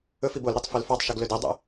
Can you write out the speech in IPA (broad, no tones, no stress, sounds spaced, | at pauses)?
ɵ f i b o l ɾ e tˤ f ɵ l f ɑ tˤ ʃ ɵ ɡ l ɵ d e dˤ ɛ̰